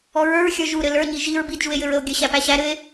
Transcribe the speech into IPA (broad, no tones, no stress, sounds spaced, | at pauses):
ɔ ɹ ə˞ ɹ xʲ ə˞ ʒ u ɾ ɘ l ə˞ ɲ i ʒ i ɹ b i d ʒ u e̯ j ɘ ɹ ə o̯ ɡʲ ɘ ɕ æ p æ ɕ æ ɾ ɘ e̯